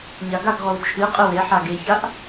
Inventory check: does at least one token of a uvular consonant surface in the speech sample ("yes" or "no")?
yes